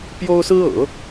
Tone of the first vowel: high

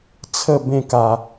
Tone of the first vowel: falling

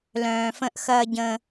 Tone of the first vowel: low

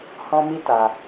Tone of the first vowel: high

